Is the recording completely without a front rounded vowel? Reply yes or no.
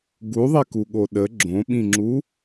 yes